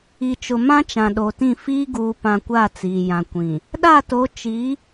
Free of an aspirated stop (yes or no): yes